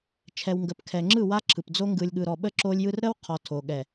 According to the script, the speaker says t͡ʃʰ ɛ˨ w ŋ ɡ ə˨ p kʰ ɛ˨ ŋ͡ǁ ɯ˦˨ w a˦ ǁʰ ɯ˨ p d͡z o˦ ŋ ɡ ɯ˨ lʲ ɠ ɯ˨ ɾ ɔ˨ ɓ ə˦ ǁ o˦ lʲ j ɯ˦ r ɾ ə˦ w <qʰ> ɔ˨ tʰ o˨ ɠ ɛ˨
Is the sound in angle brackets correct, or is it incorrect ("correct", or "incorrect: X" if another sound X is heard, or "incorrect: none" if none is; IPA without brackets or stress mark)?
correct